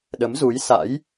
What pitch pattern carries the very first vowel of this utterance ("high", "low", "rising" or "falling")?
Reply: rising